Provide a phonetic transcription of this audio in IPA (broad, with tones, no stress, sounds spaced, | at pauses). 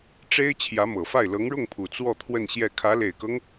ʈ͡ʂ e˥ ɪ̯ t͡ɕʰ j ä˧˥ m ɤ˨˩ f a˥˩ ɪ̯ l ɤ˧˥ ŋ ɻ ʊ˥˩ ŋ pʰ u˨˩ t͡s w ɔ˥˧ t̪ʰ w ə˥˧ n ɕ j ɛ˥˩ kʰ ä˧˥ l e˨˩ ɪ̯ k ɤ˦ ŋ